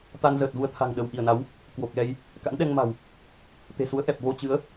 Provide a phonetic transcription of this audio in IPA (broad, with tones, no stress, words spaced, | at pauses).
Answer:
t̪a˧nzəː˨˩t̚vu˧ə̯t̪ʰa̤˨˩ŋ ɗə˧˩wʔi˧˩ə̯na˨˦w | kwo˨˩k̚lɛ˧j | ka̰˧˥nɗɛ˧ŋma̤˨˩w | t̪e̤˨˩su˨˦ə̯ʔɛ˨˩p̚ vo˧t͡ɕɨ˨˦ə̯